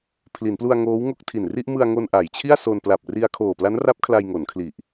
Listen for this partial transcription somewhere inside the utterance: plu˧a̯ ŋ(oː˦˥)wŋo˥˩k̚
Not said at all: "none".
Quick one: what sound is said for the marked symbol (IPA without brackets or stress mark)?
oː˦˥